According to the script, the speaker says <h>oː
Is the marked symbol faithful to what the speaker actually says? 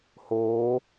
yes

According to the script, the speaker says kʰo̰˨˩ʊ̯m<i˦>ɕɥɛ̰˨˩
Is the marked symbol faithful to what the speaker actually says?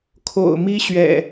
yes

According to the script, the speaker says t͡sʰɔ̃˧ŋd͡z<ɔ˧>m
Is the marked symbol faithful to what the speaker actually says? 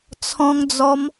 yes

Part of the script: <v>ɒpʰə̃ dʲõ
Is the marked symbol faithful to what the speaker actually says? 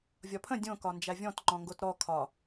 no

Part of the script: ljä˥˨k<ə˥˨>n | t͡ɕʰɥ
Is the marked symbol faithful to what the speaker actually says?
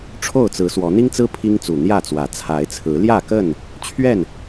yes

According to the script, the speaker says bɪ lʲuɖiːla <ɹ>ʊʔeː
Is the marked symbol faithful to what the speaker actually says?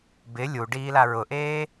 yes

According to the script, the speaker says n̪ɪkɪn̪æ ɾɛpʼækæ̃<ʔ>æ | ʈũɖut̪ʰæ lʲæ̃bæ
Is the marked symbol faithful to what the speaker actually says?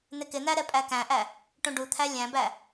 yes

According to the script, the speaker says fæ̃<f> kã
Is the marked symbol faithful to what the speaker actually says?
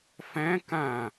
no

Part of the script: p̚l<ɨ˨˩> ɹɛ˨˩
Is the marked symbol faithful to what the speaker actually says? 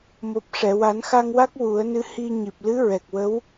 no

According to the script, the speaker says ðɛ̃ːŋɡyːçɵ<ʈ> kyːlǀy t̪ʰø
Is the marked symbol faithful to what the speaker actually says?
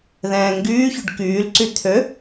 no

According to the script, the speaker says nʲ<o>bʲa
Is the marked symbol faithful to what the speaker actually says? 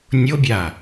yes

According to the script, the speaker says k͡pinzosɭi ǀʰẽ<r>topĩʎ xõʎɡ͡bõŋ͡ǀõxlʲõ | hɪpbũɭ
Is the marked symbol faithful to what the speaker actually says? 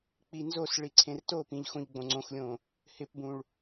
yes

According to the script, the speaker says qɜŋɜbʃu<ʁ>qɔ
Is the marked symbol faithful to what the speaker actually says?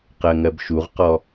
yes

